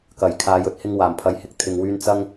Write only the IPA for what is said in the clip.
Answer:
k ɐ˨˩ j kʰ aː˨ j ɵ˧ t̚ h ɪ˧ ŋ w aː˨˩ m pʰ ɐ˨˥ j h ɪ˨ k̚ t̪ʰ ɪ˨ ŋ w yː˧ n t͡s ɐ˥ ŋ

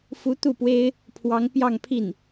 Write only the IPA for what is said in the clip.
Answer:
f u˧˥ t̪ u˥˩ p w e˥ ɪ̯ | pʰ w ɑ˧˥ ŋ p j ɑ˥˧ ŋ pʰ i˥˩ n

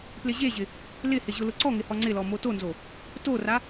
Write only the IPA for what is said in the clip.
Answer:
p l ɪ ʑ e ʑ ɪ | l ɪ h ɪ ʑ ʊ l ʊ ǀ ɔ ŋ ɪ h ɔ ŋ͡ǀ ɪ l ɔ m o t o n z o | t o r a

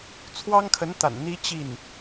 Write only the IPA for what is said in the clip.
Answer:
t͡sʰ w ɑ˥ ŋ kʰ ə˧˥ n t̪ a̰˨˩ n n̪ i˥ t͡ɕ i˥˩ n

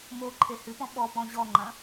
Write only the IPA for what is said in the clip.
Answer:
m o ǃʰ e h ɨ p ɔ̃ ɓ ɔ p ɔ̃ ʑ ɔ ŋ͡ǃ ɐ̃

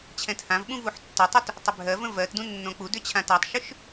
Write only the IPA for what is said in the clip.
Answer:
t͡ɕʰ ɛ̃ t h ã v ɓ ũ v u ħ tː ə tˤ u t | tˤ ʏ bʱ ɜ v ə̃ v ɜ t d ũ nː õ k͡p u d ʏ t͡ɕʰ ã t a tˤ ʃ ʏ ʃ

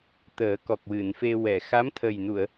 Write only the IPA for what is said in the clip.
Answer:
t̪ əː˨˩˦ k ɔ˨˩ k̚ w ɨ˨˩˨ n f e˧ w ɛ˨˩˨ x a˧˥ m t̪ʰ ə˨˩ j n u˨˩˨ ə̯

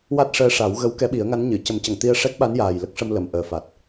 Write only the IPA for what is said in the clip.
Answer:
w a˦˥ t̚ ʂ əː˧ ʂ a˨˩˦ w ɣ ə˧˥ w k ɛ˧˥ ɓ i˨˩˦ ə̯ ŋ a˧˥ n ɲ ɨ˨˩˨ c ə˨˩˦ m c ə˨˩˨ ŋ t̪ i˧ ə̯ ʂ ɛ˦˥ k̚ ɓ a˧˥ n j aː˨˩ j l ə˦˥ k̚ ʂ ə˧ m l ə˨˩˨ m ʔ əː˨˩˨ f a˨˩ t̚

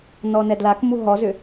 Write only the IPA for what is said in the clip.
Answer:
n ɔ n ɛ d l a k m u ɦ ɔ z ʏ

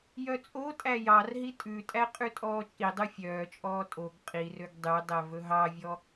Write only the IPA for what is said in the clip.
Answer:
j œ t͡sʼ o tʼ æ j ɑ r ɦ i tʼ ʉ tʼ æ qʼ ʉ tʼ ɔː t͡ʃʼ i dˤ ʉ fʲ œː t͡ʃʼ ɔː tʼ o ɡ qʼ i r ø ɡ dˤ y dˤ ɛ v ɵ ɦ ɑ vʲ ɔ

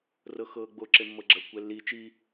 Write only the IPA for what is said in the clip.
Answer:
r ɤ x ɤː ɡ͡b o ǁ e mː ɤ ɡ͡ǁ ɐ kʷ ɛ lː i t͡ʃ i

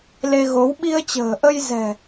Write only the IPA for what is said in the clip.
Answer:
l e˧ ɣ o˨˦ w ɓ i˧ ə̯ t͡ɕ ə̤ː˨˩ ʔ ə˧ j z ɛ̤˨˩

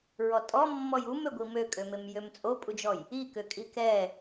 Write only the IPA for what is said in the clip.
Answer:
ɹ ɔ tʼ ɔ mː ɔ j u m ø ɡʷ i m ø kʼ ø m e m j ø m t͡sʼ o pʼ u d͡ʒ ɔ j | i k ø kʼ i k ɛ

